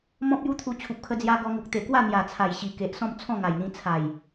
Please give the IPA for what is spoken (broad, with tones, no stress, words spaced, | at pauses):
mɔ̃˦p̚ju˦t̪ʰu˧ t͡ɕʰu˨p̚kʰə˧d͡zja˧ ɡɔ˧ŋu˨k̚ t̪e˨˩kwa˥˧ n̪ja˨˩t͡sʰa˨˩jɕi˨˩ ke˨ʔsɔ̃˥˧m t͡sʰɔ̃˥˧ŋa˨˩jn̪ĩ˧ t͡sʰa˨˩j